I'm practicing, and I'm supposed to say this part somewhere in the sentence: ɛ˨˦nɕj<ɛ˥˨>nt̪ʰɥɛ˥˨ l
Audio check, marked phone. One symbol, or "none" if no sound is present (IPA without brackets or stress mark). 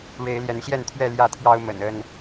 ɛ˥˨